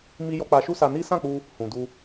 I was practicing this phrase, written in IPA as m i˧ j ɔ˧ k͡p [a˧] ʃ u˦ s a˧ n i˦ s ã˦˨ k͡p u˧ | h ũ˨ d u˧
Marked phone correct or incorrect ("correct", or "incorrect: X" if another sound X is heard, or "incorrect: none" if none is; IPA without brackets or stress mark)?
correct